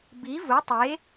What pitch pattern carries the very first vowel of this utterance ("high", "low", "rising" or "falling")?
rising